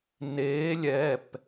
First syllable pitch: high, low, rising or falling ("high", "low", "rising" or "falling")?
rising